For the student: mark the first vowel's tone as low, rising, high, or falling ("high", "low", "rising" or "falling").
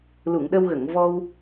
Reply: low